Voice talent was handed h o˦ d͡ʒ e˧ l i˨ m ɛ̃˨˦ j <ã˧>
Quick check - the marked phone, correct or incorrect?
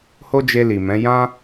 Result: correct